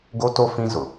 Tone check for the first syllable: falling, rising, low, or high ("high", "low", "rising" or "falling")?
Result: high